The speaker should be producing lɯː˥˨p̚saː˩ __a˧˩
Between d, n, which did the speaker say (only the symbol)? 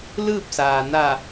n